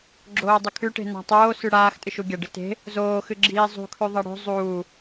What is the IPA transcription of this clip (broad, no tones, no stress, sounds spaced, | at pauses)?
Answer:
ɡ͡ǁ oː dˤ ɵ kʰ ʉ ʈ e̤ n a̤ tˤ oː s ʉ ɽ aː x tʼ ɨ ʃ u ɡʲ ɐ ɖ ɨ t e̤ | z oː x ɨ ɡ͡ǁ iː zˤ ṳ kʰ ʉ ðˤ ɐ ɽ o̤ zˤ uː